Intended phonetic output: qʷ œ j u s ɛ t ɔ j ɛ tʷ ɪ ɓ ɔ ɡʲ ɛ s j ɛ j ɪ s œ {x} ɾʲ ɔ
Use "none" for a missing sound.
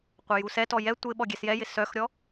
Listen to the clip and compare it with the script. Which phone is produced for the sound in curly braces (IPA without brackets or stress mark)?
x